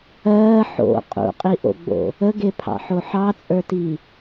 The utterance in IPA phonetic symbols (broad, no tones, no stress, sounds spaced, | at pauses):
ɜː ħ o̰ qʼ ṵ qʼ i ʔ o̰ ɡ͡b o̰ | ə ɡ e pʰ ɑ̰ ħ o ħ ɑ t͡sʼ ə˞ t i